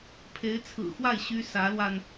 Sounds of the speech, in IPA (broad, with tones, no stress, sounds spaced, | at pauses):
pʰ e˧˥ ɪ̯ t͡sʰ ɹ̩˨˩ x w a˥˩ ɪ̯ ɕ y˥ s ä˧˥ l w a˧ n